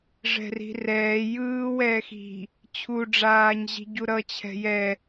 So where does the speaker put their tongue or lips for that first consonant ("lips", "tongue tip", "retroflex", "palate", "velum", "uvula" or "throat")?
retroflex